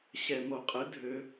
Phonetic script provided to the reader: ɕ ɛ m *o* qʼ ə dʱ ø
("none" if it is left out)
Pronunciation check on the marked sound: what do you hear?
o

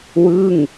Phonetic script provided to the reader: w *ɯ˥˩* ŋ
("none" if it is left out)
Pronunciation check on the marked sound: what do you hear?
ɯ˥˩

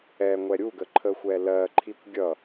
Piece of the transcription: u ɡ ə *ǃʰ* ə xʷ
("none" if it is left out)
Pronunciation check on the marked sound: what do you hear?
ǃʰ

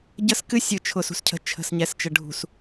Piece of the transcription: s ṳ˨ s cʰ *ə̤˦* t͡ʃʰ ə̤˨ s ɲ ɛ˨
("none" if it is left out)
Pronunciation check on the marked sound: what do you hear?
ə̤˨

